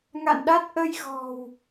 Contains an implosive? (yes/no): yes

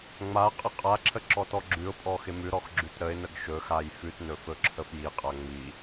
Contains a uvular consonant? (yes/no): yes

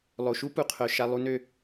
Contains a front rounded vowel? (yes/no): yes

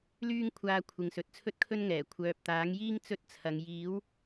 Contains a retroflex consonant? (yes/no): no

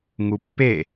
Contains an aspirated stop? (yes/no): no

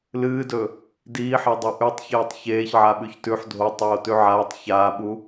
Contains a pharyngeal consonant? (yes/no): yes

